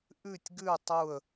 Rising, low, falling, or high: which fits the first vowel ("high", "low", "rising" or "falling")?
falling